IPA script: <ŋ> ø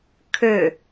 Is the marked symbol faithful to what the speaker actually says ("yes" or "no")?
no